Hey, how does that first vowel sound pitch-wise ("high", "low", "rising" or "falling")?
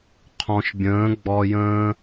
low